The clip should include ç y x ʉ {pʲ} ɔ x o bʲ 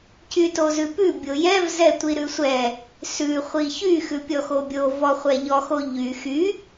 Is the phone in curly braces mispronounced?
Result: no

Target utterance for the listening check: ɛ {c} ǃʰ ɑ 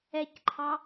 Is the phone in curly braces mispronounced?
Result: no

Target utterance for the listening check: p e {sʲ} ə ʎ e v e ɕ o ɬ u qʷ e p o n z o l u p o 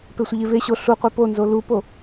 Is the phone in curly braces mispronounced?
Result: yes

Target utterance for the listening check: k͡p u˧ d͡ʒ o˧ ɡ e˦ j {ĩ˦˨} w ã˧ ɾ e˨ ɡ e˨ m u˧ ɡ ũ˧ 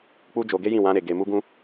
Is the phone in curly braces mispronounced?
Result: no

